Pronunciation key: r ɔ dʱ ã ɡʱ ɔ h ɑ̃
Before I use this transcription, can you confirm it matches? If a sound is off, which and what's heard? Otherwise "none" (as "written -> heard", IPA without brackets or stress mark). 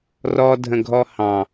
ã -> ə̃